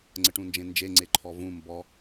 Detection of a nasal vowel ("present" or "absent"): present